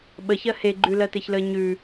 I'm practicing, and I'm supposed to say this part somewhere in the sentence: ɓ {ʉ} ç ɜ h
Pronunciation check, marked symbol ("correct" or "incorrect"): incorrect